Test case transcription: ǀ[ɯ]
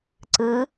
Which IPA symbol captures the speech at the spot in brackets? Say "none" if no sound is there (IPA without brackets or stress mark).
ɯ